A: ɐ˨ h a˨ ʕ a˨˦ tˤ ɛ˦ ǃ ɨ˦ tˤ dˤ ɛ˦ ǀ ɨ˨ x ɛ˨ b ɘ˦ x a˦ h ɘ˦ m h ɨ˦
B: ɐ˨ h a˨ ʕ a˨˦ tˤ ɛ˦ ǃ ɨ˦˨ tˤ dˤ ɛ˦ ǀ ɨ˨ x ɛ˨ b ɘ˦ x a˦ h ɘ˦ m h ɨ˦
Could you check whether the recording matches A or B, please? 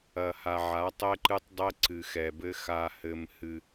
A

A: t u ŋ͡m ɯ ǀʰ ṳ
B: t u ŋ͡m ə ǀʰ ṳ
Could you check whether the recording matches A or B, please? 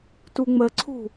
B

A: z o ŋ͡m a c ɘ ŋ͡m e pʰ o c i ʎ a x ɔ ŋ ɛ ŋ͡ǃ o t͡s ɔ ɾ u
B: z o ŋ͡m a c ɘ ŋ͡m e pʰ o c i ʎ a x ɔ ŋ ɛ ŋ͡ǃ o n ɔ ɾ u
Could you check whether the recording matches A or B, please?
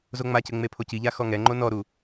B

